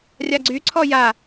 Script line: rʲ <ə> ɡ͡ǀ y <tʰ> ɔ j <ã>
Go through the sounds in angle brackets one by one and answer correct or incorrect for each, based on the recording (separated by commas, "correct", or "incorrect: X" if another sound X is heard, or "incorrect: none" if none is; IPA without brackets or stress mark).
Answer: incorrect: a, incorrect: ǀʰ, incorrect: a